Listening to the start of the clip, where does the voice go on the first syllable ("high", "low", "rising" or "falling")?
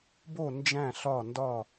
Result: falling